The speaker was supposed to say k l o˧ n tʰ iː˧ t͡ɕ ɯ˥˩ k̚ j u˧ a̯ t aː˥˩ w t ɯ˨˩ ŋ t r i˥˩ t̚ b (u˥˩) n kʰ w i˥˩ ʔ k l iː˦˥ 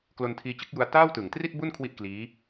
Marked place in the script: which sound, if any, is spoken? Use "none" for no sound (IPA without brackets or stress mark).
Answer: u˥˩